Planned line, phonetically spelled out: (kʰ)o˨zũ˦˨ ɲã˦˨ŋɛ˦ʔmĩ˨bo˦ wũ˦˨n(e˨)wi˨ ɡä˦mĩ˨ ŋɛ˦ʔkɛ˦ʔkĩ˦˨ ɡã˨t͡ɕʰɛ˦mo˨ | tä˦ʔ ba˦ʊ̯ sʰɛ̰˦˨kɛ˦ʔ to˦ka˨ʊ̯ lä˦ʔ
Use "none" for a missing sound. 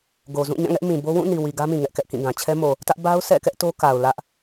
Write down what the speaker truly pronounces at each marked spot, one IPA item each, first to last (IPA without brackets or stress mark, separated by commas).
ɡ, i˨